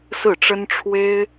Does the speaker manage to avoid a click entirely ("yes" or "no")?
yes